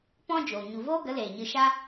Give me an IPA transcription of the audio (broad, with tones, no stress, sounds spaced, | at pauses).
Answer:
p ɔ̃˦ d͡ʒ oː˨ ɲ u˨ v oː˦ ɡ ə˨˦ l eː˨ ɲ ɨ˧ ʃ a˦